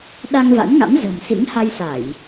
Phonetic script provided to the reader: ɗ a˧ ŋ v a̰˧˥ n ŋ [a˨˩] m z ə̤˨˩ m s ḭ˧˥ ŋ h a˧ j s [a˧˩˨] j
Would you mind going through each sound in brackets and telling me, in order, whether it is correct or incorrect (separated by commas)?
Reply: incorrect, correct